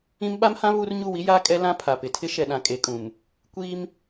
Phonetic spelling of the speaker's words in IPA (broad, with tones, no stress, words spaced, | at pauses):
ĩ˦m ɓa˦mhã˦ βu˦r ɲu˦˨wi˦jaː˦ kʼɛ˦lã˦ pʰa˨pɪ˨ tʰɪ˦ʃɛ˨ɗã˨ kʼe˨kʼũ˨m | kʷiː˦m